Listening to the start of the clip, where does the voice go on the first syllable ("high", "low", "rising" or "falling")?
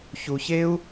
low